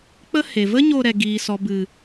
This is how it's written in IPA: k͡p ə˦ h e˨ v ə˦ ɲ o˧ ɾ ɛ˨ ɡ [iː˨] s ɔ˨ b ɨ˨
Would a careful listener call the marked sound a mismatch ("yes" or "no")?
no